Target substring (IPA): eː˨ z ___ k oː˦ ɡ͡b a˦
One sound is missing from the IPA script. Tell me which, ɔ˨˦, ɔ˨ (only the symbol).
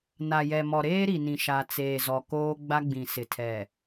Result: ɔ˨